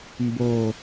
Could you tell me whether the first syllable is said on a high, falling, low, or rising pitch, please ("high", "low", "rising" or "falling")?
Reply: low